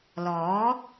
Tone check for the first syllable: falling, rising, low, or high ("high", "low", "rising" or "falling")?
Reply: rising